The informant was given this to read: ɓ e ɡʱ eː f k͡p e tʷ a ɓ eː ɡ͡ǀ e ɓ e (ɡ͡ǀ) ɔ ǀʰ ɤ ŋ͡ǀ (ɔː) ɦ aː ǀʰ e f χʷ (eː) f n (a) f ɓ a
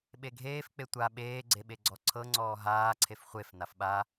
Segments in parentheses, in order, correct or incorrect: correct, correct, incorrect, correct

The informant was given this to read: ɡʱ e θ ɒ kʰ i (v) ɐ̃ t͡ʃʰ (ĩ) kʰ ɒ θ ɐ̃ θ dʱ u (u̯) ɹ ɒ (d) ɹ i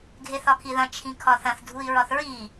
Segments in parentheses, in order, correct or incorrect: incorrect, correct, incorrect, incorrect

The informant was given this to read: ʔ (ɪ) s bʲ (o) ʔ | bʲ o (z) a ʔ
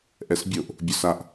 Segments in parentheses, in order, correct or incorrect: incorrect, correct, incorrect

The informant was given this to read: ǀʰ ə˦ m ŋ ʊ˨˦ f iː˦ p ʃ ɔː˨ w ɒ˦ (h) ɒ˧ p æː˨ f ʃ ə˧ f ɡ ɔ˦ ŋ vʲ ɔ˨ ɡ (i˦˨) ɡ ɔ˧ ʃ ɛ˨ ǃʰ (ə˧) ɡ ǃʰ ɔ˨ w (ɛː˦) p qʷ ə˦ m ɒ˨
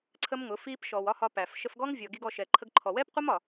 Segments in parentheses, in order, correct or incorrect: correct, incorrect, correct, correct

